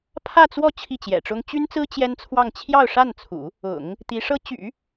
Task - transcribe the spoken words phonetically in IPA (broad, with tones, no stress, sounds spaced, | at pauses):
pʰ ä˥˧ t͡s w ɔ˥˧ t͡ɕʰ i˥˩ t͡ɕ j ɛ̰˨˩ ʈ͡ʂ ʊ˥ ŋ t͡ɕ y˥ n t͡s ɹ̩˥ t͡ɕ j ɛ˥ n t͡sʰ w ɑ˥˧ ŋ t͡ɕʰ j ɑ˥˧ ʊ̯ ʂ a˥˩ n t͡sʰ ṵ˨˩˦ | ʊ̰˨˩˦ ŋ | t̪ i˧˥ ʂ ɤ˥ t͡ɕ y̰˨˩˦